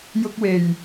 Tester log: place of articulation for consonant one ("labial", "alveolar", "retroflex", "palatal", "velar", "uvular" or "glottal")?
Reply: palatal